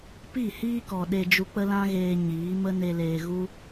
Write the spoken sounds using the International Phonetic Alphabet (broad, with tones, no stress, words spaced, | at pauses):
pi˦˨hiː˦kɔ˨ ɗe˧d͡ʒu˧k͡pə˦ lã˦ɣeː˧ ɲiː˨˦ mə˦ne˧leː˧ ɣu˦